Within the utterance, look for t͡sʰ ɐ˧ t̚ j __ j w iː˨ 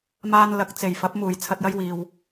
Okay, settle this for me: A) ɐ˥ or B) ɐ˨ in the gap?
A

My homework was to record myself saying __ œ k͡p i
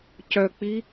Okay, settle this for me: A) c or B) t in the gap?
A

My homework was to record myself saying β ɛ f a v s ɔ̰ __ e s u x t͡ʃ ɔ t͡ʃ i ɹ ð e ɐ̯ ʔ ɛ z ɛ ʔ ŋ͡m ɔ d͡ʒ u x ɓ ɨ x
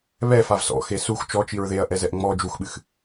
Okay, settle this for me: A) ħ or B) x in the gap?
B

